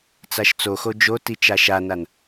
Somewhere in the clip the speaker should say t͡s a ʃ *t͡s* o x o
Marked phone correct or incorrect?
correct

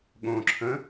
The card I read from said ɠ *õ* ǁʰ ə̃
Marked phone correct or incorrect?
correct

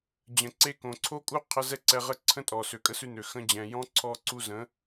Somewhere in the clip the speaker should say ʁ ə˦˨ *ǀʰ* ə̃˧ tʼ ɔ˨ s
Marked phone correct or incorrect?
correct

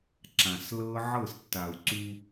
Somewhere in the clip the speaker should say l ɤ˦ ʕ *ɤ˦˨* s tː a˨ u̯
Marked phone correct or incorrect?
correct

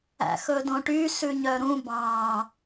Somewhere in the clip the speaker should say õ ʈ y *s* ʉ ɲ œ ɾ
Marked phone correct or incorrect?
correct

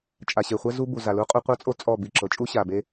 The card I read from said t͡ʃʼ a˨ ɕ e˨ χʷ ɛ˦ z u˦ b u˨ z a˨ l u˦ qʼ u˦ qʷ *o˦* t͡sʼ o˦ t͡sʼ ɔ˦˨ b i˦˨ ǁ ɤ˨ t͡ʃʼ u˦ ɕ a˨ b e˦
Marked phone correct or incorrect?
incorrect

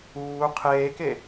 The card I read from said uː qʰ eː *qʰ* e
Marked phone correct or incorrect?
incorrect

